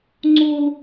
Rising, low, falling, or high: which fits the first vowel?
high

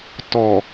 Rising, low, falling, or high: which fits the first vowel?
low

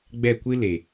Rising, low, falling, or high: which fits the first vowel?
falling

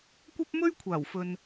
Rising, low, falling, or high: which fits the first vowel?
high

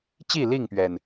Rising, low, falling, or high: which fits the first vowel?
falling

